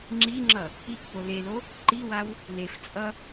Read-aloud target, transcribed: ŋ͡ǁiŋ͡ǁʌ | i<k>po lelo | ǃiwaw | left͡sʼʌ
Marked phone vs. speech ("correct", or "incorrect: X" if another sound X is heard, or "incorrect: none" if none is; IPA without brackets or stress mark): correct